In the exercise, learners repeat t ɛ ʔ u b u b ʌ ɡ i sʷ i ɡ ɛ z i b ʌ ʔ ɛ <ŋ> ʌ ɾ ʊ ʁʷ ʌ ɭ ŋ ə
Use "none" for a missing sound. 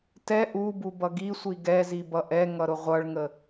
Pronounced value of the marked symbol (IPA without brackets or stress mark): ŋ